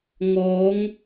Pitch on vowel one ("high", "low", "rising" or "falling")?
rising